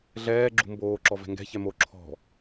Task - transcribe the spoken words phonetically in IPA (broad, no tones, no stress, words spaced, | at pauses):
ɮɛː ɡ͡ǁṳmboː ǁɔvɛ̤ŋɡɛ̤ çɛmo ǁʰɔ̤